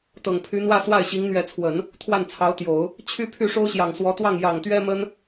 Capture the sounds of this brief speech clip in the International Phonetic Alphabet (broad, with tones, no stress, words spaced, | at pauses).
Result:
t̪ɤ˨˩ŋpʰy˧˥n̪wä˥˧ swa˥˩ɪ̯ɕi˧˥ŋ n̪ɥɛ˧˥t͡sʰwə˨˩˦n | t̪ʰwa˥˩nt͡sʰɑ˧˥ʊ̯t̪jo˨˩˦ʊ̯ | t͡ɕʰy˥˧ pʰy˥˩ʂo˥ʊ̯ɕjɑ˨˩ŋ swɔ˧˥t̪wɑ˥˩ŋ jɑ˨˩ŋt̪ɥɛ˥mə˥n